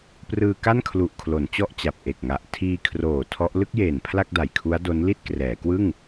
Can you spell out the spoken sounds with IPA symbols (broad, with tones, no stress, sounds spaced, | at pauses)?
p r ɯː˧ k a˥˩ n kʰ l u˨˩ ʔ kʰ l o˩˦ n t͡ɕ ɔ˥˩ ʔ t͡ɕ a˨˩ p̚ ʔ e˨˩ k̚ ŋ a˨˩ ʔ tʰ iː˧ kʰ r oː˨˩ tʰ ɔ˦˥ ʔ l ɯ˥˩ k̚ j eː˨˩ n pʰ l a˥˩ k̚ d a˨˩ j kʰ u˦˥ a̯ d o˦˥ n l i˥˩ t̚ k r ɛː˩˦ k w ɯ˥˩ ŋ